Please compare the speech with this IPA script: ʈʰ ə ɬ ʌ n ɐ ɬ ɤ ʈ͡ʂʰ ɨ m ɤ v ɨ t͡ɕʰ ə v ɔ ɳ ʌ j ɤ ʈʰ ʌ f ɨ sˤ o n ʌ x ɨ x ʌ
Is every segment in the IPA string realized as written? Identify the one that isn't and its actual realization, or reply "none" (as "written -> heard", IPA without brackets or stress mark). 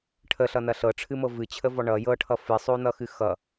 none